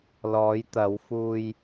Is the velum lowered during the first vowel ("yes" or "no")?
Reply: no